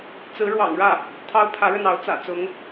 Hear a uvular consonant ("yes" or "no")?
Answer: no